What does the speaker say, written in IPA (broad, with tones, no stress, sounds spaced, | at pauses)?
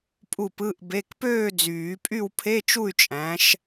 pʼ u˥˨ p ɯ˧˥˧ ʔ b e˧˥˧ k p øː˥˨ d͡z yː˨˩˦ pʼ y˥˨ w pʰ e˧˥˧ t͡ʃ u˥˨ y̯ t͡ʃʼ æ̃˨˦ ʃ